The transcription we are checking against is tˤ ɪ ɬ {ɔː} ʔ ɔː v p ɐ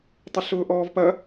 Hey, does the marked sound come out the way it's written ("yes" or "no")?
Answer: no